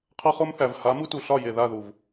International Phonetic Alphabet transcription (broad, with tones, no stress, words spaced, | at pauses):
qʰʌ˦χo˦mθæ˨v ha˨˦mu˦tu˨ɬɒ˦˨ je˨ða˦˨ðu˨v